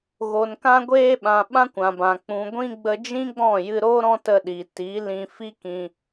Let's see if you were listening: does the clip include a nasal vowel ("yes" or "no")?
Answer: yes